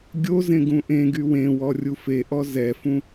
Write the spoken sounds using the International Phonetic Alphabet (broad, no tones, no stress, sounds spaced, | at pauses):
ɡʲ o z ẽ ɡ ũ ʔ ẽ ɡ y w ẽ w ɔ rʲ u f e ʔ ɔ z ɛ f ũ